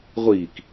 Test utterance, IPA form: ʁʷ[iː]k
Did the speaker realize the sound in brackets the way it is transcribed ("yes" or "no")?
yes